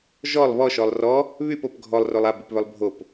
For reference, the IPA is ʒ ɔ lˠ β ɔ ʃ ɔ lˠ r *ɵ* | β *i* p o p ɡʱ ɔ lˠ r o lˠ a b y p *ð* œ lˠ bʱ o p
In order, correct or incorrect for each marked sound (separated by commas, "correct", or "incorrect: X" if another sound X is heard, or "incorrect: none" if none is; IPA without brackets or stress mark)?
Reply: incorrect: ɔ, incorrect: y, incorrect: β